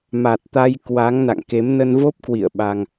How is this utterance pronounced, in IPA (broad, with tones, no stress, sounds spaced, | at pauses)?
m a˨˩ t̚ t̪ a˧ j k w a˨˦ ŋ n a̰˧˨ ŋ k e˨˦ m n ə˧ n v o˦˥ p̚ k w ḭ˧˨ ə̯ ɓ a˧ ŋ